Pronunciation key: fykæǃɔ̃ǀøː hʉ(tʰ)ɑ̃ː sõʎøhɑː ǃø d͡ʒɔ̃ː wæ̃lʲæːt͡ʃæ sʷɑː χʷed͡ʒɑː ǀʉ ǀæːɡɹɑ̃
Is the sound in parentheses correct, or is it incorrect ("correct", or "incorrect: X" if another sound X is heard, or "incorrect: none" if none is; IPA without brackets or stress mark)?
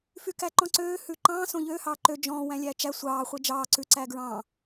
incorrect: ǃ